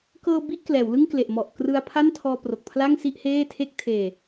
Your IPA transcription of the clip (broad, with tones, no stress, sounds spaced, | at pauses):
k ɤː˧ b i˥˩ ʔ k l ɛː˩˦ w l ɯ˥˩ ŋ k l e˨˩ ʔ m ɔ˨˩ ʔ k r ɯ˧ a̯ pʰ a˥˩ n tʰ ɔː˧ p r o˨˩ k̚ pʰ l a˥˩ ŋ s i˥˩ ʔ h eː˥˩ tʰ e˥˩ k̚ tʰ eː˧